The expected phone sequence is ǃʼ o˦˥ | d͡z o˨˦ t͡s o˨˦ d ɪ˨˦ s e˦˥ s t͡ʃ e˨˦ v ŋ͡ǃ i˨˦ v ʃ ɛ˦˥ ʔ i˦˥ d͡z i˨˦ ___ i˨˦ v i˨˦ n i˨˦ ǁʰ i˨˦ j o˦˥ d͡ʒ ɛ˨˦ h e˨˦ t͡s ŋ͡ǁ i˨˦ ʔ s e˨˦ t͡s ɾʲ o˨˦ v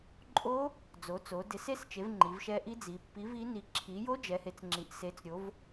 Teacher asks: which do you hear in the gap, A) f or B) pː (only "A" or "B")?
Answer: B